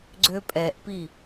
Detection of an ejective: present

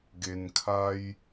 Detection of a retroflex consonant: absent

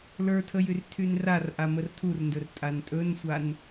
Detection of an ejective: present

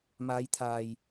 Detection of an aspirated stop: present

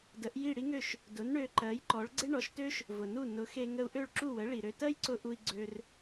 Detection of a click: present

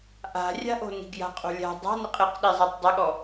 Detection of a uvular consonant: present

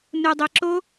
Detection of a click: present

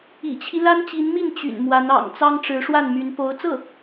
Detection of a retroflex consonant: present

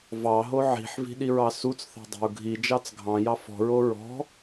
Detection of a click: absent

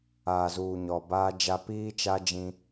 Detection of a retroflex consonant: absent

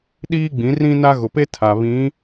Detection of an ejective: absent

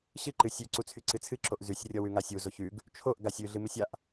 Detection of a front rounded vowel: present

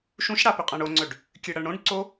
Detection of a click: present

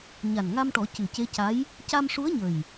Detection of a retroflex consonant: present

